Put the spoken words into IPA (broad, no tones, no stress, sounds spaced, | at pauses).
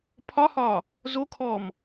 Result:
pʰ ɒ h ɒː | z o kʰ ɔː m